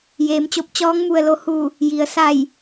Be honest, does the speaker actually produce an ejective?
no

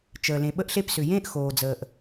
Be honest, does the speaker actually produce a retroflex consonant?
no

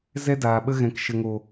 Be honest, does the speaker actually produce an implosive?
yes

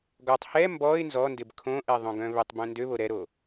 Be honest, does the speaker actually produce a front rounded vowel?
yes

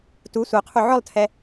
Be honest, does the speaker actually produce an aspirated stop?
yes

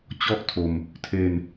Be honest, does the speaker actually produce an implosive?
no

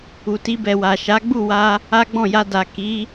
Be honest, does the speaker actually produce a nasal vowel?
yes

